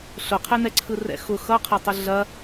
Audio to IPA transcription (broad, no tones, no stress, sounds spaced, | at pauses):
ɬ ʊ qʰ ɛ n ɛ ǀʰ ɯ r ɛ̰ x ʊ x ʌ qʰ ɐ tˤ ʊ ɮ ɐ